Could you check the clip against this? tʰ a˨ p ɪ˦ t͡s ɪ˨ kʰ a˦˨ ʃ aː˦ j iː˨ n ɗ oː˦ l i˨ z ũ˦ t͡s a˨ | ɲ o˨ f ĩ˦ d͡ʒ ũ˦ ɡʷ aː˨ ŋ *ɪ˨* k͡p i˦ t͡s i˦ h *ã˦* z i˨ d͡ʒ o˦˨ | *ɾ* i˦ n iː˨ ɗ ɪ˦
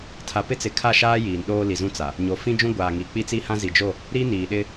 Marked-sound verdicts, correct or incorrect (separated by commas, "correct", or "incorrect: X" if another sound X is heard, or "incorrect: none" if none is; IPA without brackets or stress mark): incorrect: i˨, correct, correct